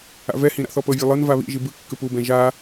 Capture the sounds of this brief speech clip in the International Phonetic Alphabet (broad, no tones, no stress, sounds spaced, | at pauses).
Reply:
a̰ v ɛ h ĩ ɾ a̰ θ ɔ p ɤ vʲ o lˠ ɤ n v a β ḭ ʒ i b ɯ kː ɯ p u b ɛ̃ ʒ a